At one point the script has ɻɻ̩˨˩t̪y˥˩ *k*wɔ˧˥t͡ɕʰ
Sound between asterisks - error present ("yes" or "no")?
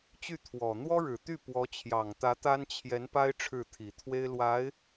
yes